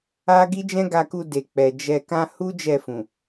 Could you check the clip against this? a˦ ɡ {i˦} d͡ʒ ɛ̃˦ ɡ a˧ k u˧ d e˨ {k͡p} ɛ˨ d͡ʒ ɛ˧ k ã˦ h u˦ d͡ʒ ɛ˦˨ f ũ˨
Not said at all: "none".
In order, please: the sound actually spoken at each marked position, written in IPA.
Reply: i˦, k͡p

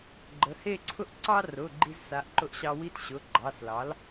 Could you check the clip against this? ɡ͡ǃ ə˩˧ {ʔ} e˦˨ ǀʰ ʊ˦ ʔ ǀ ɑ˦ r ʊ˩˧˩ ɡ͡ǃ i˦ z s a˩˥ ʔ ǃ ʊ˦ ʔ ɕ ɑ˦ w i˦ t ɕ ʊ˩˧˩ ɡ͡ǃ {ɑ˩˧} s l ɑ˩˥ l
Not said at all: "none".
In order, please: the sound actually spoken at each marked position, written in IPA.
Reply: h, ɑ˩˧˩

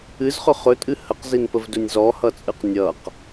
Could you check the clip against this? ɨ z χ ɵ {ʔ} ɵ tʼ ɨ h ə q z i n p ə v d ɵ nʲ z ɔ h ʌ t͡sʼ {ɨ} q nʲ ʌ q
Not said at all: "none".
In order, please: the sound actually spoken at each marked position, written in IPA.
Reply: χ, ɨ

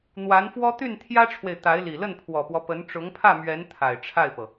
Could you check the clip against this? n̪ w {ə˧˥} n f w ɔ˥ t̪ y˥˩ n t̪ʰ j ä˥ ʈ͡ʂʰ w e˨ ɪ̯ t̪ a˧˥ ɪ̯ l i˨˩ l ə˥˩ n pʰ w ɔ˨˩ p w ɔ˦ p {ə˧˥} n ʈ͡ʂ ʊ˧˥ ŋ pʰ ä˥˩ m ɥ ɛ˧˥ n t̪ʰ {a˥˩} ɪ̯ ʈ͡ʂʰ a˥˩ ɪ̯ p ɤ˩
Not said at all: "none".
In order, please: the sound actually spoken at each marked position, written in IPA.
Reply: a˧˥, ə˧˥, a˨˩

